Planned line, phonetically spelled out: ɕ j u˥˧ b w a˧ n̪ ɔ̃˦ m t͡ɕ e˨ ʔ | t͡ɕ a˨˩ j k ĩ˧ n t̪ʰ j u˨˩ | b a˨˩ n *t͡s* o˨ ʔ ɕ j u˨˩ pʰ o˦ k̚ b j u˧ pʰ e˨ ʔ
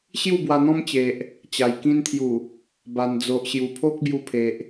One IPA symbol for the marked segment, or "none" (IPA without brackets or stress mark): d͡z